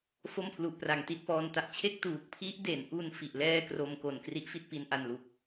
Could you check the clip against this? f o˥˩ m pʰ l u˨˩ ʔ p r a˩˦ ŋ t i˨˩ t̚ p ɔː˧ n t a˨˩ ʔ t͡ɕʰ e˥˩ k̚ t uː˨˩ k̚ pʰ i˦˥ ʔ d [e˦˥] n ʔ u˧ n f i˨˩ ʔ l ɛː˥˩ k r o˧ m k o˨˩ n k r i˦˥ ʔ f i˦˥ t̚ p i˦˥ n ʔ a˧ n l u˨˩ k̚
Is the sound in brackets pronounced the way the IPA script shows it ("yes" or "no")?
no